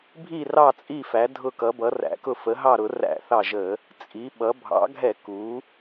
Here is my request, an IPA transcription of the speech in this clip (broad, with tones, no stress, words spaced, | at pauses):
bʱi˧˩rɑ˧˩t͡sʼi˧˩fæ˩˧ dʱʊ˧˩kʌ˩˧ bʌ˩˧ræ̰˩˧kʊ˧˩ fə˩˧ɦɑ˧˩ɾʊ˧˩˧ ræ̰˧˩˧θɑ˧˩ʒə˧˩˧ | t͡sʼi˩˧ɓʌ˩˧ bʱɑ̰˩˧ ɡʱɛ˧˩˧ku˩˧